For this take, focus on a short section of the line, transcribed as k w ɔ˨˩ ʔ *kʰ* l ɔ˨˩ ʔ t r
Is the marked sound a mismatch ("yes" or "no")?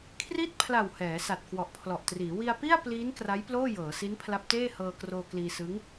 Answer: yes